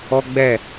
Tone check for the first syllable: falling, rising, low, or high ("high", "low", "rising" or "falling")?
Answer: high